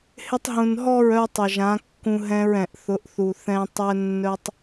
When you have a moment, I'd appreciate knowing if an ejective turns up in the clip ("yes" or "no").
no